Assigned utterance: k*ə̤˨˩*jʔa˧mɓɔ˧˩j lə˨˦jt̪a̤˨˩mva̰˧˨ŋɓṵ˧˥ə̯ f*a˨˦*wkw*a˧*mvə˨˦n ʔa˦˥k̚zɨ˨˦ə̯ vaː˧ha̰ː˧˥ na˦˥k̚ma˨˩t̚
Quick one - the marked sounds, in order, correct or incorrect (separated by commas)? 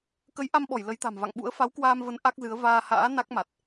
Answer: incorrect, correct, incorrect